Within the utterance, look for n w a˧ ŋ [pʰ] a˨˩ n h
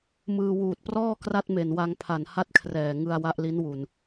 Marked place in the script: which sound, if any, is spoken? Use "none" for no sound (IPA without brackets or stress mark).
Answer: pʰ